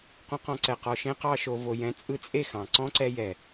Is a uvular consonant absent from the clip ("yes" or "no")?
no